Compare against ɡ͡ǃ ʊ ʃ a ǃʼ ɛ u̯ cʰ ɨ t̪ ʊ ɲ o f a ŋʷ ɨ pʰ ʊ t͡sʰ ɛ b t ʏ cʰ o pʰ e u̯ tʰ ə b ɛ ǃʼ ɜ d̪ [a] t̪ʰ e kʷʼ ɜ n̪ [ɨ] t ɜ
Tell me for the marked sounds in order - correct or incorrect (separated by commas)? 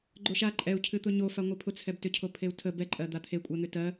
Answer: correct, incorrect